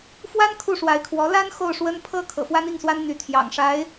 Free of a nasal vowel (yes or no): yes